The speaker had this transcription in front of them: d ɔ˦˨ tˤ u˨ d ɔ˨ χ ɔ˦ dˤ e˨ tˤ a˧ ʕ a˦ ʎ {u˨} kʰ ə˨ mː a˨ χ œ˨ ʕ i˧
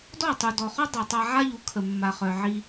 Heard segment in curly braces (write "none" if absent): u˨˦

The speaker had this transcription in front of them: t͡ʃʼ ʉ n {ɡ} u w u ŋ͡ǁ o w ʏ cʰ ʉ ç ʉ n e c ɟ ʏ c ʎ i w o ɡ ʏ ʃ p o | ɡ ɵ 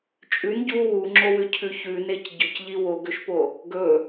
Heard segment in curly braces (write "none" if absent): ɟ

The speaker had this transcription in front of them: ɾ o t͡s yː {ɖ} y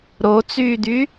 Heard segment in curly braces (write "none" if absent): d̪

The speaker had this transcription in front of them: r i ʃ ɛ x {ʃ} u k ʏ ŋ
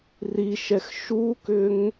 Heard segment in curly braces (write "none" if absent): ʃ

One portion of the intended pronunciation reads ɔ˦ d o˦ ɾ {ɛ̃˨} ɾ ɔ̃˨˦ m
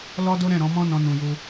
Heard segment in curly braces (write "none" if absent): ɛ̃˦˨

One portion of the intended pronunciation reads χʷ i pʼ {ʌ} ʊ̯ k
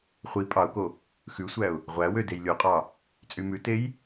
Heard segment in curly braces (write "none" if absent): ɑ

